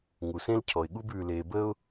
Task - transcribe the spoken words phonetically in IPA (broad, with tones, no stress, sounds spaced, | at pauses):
ŋ u˩ s ẽ˥ l cʰ ɔ˩ ɪ̯ ɠ u˥ b ʉ˩ l e˩ b ə˥ ʊ̯